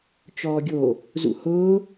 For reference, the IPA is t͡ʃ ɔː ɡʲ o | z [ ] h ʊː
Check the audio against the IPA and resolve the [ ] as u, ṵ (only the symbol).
ṵ